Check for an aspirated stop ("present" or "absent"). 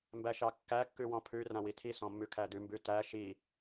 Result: present